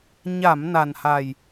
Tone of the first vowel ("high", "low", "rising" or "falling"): low